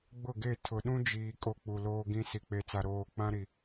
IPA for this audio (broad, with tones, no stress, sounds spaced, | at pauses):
ɡ͡b ʊ˦˨ ɡ e˦˨ tʰ ʊ˨ ɗ ũ˦ d͡ʒ iː˨ kʼ o˦ k͡p u˨ l oː˦ ɡ ĩ˦ s i˨ k͡p e˨ t͡s a˨ ɾ oː˨ k͡p ã˦ ɾ i˨